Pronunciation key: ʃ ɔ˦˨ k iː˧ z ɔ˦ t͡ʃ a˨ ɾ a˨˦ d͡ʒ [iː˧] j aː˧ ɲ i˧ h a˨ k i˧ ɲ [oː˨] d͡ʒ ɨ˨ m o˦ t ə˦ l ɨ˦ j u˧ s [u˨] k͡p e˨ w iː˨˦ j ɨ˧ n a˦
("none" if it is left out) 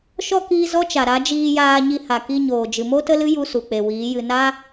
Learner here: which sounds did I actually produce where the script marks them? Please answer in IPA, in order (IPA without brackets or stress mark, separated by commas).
iː˧, oː˨, u˨